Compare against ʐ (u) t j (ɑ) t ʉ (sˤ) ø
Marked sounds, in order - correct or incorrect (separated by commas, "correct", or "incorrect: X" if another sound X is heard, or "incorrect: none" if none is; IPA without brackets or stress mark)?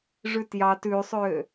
incorrect: ʉ, correct, correct